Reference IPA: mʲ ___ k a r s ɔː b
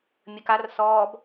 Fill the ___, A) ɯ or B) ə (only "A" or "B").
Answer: B